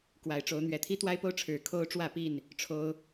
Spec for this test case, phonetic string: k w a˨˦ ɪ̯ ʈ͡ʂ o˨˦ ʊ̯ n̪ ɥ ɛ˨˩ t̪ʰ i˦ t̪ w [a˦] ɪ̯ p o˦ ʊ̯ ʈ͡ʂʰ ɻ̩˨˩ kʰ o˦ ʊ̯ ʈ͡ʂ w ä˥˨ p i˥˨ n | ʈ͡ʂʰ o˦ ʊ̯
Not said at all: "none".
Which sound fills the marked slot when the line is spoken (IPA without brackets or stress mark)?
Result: a˦